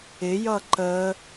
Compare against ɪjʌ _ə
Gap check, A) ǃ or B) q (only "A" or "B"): A